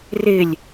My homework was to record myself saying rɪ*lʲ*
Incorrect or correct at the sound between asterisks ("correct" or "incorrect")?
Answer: correct